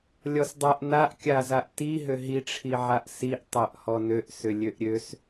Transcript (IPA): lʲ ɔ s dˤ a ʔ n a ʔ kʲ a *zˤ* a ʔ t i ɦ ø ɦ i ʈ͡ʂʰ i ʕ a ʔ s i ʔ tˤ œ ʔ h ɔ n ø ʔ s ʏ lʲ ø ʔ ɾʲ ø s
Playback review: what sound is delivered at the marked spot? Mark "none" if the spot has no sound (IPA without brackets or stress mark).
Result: z